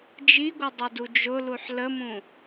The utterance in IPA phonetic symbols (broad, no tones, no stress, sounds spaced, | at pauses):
d͡ʒ i ɡʷ ə dˤ ʌ d u d͡ʒ ʊ l u ħ l ə m ũ